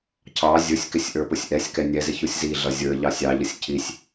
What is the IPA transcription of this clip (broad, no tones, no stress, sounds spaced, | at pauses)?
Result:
cʰ ɑ zʲ ʊ sʲ k ɪ sʲ ʔ ə˞ p ʊ sʲ ʔ ɛ sʲ k ɛ nʲ ɛ z ɪ ç u sʲ z i ɮ ʌ zʲ ə˞ ʎ ɑ sʲ ɑ ʎ ʌ sʲ cʰ i sʲ